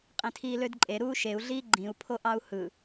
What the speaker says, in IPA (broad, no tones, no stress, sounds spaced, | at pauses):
qʼ ĩ tʰ iː l ø d ǃʼ e ɾ uː ʃ e u̯ ɮ iː ɡ͡ǃ ĩ u̯ pʰ o ʔ ɑ u̯ h ɯ